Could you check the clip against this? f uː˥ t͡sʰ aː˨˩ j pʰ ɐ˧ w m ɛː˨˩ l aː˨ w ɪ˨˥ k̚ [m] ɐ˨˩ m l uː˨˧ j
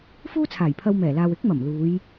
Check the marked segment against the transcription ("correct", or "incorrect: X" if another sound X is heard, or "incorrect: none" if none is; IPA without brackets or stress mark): correct